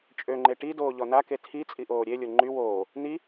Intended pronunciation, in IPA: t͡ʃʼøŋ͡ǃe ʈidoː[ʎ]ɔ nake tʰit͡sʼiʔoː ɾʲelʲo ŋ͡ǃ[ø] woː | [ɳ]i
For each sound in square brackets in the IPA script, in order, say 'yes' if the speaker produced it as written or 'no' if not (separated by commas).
yes, no, no